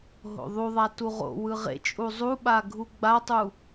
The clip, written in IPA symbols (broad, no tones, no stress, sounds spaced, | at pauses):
ɦ o̰ ðˤ u ðˤ a t u ʁ o̰ w ɯ ʁ ḛ t͡ʃʼ u zˤ u ɓ a ɡʱ u ɡ͡b a tˤ u